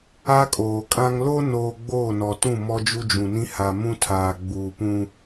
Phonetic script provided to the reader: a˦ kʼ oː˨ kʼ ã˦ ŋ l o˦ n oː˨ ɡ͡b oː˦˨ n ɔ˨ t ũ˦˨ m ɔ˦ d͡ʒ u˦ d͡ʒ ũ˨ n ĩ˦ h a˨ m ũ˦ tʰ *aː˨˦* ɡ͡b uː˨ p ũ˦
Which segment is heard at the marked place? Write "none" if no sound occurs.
aː˨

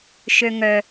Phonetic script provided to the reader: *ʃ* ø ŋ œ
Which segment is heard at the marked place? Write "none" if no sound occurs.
ʃ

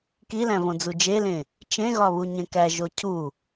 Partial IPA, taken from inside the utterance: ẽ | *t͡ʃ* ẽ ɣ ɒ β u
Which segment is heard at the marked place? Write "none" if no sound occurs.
t͡ʃ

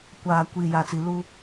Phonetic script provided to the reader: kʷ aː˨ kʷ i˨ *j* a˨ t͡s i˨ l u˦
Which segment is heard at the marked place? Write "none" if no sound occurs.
j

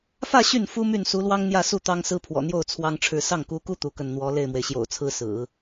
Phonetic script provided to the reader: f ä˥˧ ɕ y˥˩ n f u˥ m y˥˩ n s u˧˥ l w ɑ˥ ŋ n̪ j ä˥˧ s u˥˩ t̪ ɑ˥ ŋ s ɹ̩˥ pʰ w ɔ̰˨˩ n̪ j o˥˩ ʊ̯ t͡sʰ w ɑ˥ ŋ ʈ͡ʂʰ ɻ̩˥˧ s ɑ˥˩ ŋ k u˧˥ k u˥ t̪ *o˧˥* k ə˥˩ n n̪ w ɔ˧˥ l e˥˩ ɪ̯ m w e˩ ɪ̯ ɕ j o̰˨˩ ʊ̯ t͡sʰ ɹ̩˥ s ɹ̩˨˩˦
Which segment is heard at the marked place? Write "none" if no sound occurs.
u˧˥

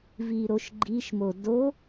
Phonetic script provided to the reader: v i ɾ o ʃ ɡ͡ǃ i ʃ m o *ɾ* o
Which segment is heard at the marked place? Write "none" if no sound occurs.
d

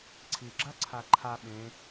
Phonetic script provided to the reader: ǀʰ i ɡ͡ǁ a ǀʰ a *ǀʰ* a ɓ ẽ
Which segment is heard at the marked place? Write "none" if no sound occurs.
ǃʰ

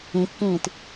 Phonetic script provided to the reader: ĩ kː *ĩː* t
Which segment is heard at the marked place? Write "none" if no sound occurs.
ĩː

